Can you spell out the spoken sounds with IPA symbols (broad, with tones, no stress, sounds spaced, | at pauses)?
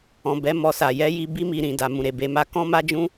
ɔ̃˨ b ɛ˨˦ m ɔ˧ s a˨ j ɛ˨˦ j i˧ b i˦ m i˧ ɾ ĩ˨ d a˨ m ũ˨ ɾ e˨ b e˨˦ m a˧ k ɔ̃˦ m a˦ d͡ʒ ũ˦